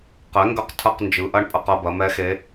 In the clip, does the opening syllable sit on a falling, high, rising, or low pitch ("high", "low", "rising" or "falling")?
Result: rising